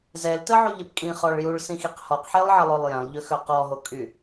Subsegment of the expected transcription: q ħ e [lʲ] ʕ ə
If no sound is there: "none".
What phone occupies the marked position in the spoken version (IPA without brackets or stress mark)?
lˠ